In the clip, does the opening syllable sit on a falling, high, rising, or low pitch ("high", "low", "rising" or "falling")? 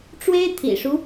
high